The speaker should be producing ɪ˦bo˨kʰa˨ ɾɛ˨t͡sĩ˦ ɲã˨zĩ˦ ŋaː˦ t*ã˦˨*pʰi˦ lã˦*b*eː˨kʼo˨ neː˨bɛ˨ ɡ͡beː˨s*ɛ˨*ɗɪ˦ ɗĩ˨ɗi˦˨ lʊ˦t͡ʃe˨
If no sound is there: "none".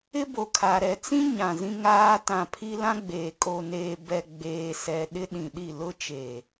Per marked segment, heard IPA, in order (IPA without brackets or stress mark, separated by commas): ã˨, ɡ͡b, ɛ˨